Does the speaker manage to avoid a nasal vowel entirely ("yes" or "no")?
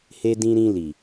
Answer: no